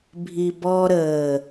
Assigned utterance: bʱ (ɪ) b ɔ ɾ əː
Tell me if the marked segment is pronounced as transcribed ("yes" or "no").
no